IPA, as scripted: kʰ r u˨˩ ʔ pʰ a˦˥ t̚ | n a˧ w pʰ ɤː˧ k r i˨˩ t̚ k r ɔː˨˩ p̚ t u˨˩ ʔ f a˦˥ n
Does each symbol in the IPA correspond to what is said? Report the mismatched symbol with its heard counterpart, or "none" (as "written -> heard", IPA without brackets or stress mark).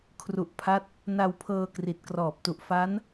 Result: none